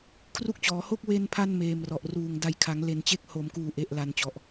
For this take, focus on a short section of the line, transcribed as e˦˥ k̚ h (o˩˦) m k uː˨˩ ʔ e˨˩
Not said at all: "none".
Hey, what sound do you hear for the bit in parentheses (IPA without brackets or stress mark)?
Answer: o˩˦